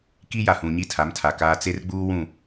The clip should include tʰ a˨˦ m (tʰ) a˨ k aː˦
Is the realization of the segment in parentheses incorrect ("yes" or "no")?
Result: no